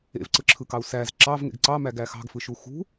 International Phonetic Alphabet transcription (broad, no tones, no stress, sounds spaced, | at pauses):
ḛ v ǀ ɯ ǁʰ ɯ k ɑ u̯ s æ z ǁ ɑ v ŋ ḛ ɡ ǀ ɑ m æ ɡ æ x ɑ̤ ɡ f ɯ ʃ u x ṳ